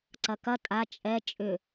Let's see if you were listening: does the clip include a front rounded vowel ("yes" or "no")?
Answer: yes